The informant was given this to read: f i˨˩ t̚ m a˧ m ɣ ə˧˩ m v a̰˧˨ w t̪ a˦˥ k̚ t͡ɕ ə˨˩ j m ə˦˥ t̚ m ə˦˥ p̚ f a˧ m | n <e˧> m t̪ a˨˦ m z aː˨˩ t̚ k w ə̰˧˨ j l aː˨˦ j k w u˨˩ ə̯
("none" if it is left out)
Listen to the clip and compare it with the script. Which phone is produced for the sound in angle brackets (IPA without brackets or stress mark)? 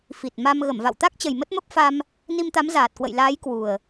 i˧